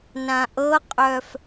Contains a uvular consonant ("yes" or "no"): yes